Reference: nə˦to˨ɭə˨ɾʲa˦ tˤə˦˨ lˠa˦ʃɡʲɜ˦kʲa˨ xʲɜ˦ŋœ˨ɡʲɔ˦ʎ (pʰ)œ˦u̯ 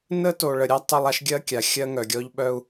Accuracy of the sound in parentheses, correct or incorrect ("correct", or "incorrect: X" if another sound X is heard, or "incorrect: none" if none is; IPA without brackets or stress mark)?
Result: incorrect: ɓ